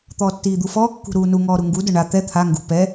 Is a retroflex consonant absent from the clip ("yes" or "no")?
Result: no